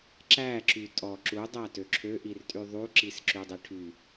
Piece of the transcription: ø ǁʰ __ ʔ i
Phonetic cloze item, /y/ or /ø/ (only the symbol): ø